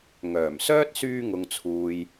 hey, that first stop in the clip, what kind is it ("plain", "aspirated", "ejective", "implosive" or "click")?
plain